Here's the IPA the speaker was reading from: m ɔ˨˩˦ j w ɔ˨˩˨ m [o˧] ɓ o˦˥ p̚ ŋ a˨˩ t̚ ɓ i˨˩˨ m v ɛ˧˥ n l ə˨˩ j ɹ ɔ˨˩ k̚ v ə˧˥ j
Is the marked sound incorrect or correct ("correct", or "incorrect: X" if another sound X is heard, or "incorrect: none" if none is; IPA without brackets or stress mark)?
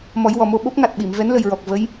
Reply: correct